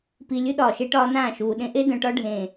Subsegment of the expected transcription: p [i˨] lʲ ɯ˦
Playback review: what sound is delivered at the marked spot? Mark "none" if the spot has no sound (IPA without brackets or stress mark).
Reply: i˨